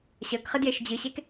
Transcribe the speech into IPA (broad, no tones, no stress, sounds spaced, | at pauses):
ɕ əː k χ ɨ d j e ʃ d͡ʑ ɨ ɕ e k